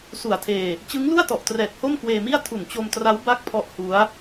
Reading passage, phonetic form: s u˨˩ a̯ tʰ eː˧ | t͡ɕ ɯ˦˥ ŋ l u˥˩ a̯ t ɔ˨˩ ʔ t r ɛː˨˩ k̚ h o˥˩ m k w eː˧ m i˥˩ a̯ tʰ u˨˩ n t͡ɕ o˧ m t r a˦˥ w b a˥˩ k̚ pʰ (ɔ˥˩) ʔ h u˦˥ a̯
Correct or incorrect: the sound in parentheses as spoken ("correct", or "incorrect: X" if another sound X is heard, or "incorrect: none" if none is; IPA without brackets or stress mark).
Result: incorrect: ɔ˦˥